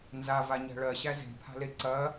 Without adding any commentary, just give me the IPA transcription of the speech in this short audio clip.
n z a v a ɲ æ̤ ɭ ɜ ɕ æ z e̤ pʰ a̤ l e ǀ ɐ

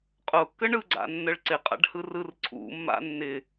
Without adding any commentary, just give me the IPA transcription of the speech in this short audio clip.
qʼ ʊ kː ə ɳ ɯ ɡ͡ǀ a̰ nː ə ɭ ǀ ɪ qʼ a̰ ɖ h ɯ r ɯ r ǀʰ ṵ mː a̰ nː ɪ

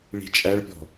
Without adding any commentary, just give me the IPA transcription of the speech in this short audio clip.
ɭ i̤ t͡ʃʼ æ ɭ pʲ ɔ̤

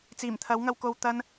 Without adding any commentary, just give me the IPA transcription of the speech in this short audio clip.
t͡s iː˨˩ m t̪ʰ ɐ˨˥ w ŋ ɐ˧ w k o˧ w t̪ ɐ˧ n

